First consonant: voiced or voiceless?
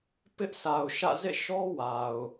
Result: voiceless